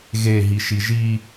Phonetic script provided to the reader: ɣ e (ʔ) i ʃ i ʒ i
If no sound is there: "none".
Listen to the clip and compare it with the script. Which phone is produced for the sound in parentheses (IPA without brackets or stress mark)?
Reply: ɦ